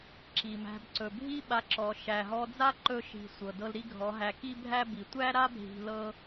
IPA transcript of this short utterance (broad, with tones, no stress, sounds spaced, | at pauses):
ǁ i˨ m æ̤˧ b ǀ ɵ˨ bʱ i˦ ɓ a˧ ǁ ɔ˨ ʃ æ˨ ɦ ɔ˧ d͡z a˦ ǃ ɵ˧ ʃ i̤˨ sʷ ɤ˨ d ɤ˧ l ɾ i˦ ɡʱ ɔ˨˦ ɦ æ˧ k i˦ bʱ æ˦ b i˨ tʷ æ˦ ɾ a˦ bʱ i̤˧ l ɤ˦